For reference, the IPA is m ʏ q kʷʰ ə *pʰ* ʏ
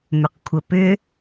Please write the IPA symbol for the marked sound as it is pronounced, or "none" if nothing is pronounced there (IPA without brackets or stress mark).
p